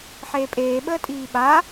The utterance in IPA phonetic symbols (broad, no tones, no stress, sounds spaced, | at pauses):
ħ eː pʼ eː ɓ əː tʼ iː ɓ a